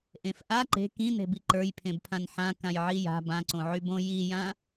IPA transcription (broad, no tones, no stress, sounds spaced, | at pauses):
ʔ ẽ f ʔ a ǃ e̤ k ĩ n e̤ b i ǃ ə˞ j pʰ ẽ b pʰ ã n ħ ã k ã j ʕ i j a̤ b ã ǀ õ ʕ y b õ j i j ã